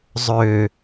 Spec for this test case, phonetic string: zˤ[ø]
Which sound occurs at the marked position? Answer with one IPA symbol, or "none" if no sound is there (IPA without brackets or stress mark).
ø